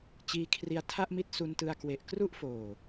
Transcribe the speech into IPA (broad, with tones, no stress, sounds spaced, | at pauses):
t͡ɕ iː˧ kʰ r i˧ a̯ tʰ a˥˩ ʔ m i˦˥ t̚ s u˧ n t ɯ˧ a̯ k w e˨˩ ʔ k r u˥˩ ʔ f oː˨˩